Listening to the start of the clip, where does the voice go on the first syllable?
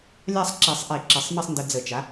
falling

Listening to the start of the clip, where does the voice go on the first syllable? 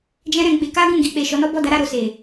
high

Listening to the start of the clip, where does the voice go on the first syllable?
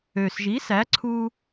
low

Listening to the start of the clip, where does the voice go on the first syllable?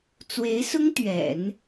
rising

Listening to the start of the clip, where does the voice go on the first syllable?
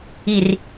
low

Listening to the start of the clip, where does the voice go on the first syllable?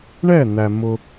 falling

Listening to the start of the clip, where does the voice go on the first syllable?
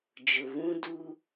low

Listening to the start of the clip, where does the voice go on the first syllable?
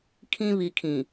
high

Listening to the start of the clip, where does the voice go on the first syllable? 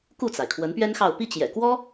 falling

